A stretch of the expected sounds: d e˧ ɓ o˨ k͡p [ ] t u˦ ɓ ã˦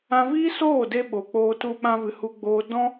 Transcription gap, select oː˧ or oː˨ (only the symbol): oː˧